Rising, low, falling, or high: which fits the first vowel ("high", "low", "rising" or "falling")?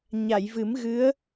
low